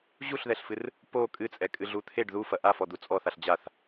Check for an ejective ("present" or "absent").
present